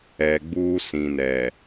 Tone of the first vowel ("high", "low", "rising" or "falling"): low